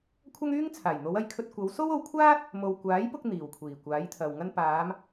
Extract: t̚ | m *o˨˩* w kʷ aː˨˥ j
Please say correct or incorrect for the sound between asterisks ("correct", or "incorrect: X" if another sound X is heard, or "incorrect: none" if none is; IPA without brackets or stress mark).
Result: incorrect: o˨